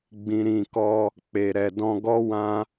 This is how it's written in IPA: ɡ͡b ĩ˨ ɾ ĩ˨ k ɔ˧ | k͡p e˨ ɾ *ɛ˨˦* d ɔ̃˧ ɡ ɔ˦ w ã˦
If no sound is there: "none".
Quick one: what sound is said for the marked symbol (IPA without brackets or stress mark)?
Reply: ɛ˨